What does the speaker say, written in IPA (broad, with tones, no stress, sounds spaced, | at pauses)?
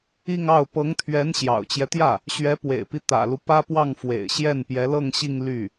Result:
i˥˧ ŋ ɑ˥˩ ʊ̯ p ɤ˧˥ ŋ t̪ʰ ɥ ɛ˧˥ n ɕ j ɑ̰˨˩ ʊ̯ t͡ɕ j ɛ˦ t̪ j ä˥˩ | ɕ ɥ ɛ˧˥ p w ḛ˨˩ ɪ̯ p i˦ t̪ ä̰˨˩ l u˦ p ä˥ p w ɑ˥˩ ŋ f w ḛ˨˩ ɪ̯ ɕ j ɛ˥˩ n p j ɛ˧˥ l ɤ˥˧ ŋ ɕ i˥˧ ŋ l y˥˩